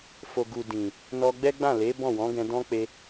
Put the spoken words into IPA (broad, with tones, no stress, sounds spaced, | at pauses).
f o˨ ɡ u˨ d ĩ˨ | n ɔ˧ ɡ͡b ɛ˦ ɡ͡b ã˦˨ l e˨˦ b ɔ̃˦˨ w ɔ̃˨˦ ɡ ɛ̃˧ d ɔ̃˦ k͡p e˧